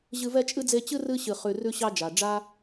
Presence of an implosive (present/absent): absent